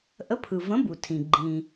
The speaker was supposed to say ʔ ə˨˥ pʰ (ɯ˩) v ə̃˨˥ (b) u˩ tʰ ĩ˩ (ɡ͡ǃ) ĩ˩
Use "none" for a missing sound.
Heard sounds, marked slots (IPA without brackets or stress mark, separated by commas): ɯ˩, b, ɡ͡ǃ